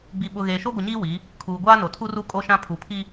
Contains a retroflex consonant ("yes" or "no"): no